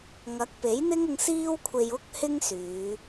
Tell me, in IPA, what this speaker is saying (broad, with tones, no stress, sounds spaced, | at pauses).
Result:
ŋ ɐ˨˥ k̚ p e˨˥ j n̪ ɪ˥ ŋ ʊ˧ ŋ s iː˥ w kʷʰ e˧ j ʊ˥ k̚ h ɪ˥ ŋ s yː˨˧